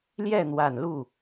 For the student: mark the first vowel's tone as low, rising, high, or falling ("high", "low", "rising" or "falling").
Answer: falling